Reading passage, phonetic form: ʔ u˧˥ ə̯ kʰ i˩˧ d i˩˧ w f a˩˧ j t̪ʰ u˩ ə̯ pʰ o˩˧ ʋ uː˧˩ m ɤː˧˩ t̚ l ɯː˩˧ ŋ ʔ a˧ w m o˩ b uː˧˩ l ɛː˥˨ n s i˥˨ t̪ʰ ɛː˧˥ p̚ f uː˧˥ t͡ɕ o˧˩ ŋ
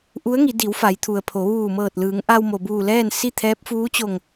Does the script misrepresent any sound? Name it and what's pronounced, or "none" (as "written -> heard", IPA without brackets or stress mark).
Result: kʰ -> ŋ